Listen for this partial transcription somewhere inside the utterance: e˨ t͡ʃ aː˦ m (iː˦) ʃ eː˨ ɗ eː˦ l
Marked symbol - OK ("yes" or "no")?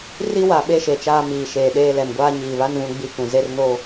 no